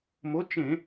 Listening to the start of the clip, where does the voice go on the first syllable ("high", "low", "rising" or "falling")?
rising